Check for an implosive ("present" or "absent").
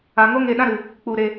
present